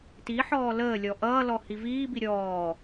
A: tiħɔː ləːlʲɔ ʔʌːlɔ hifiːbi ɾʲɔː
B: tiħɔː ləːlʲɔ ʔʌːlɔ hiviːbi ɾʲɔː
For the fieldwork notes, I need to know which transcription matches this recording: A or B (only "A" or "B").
B